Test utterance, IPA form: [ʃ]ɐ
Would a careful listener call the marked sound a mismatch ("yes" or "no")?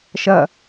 no